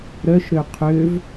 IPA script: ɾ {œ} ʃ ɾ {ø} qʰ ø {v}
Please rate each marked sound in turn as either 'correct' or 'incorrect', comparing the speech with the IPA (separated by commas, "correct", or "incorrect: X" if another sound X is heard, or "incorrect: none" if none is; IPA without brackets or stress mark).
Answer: correct, correct, correct